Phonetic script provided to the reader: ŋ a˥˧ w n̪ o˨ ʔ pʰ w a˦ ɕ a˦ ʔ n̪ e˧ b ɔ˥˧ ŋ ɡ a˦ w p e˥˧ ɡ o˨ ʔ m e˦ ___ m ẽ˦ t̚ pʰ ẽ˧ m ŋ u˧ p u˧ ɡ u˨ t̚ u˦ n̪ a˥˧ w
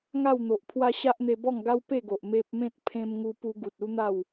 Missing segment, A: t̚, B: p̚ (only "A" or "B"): B